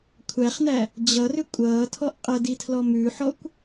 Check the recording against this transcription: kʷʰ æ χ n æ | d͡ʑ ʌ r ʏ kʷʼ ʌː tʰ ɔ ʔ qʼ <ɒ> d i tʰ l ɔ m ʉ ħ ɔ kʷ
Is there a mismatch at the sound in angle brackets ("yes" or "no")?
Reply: yes